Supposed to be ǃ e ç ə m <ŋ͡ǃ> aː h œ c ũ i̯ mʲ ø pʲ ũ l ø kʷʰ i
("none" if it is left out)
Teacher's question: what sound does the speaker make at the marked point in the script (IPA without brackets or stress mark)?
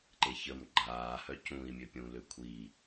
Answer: ɡ͡ǃ